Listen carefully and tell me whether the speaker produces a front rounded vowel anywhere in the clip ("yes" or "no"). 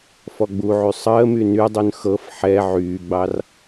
yes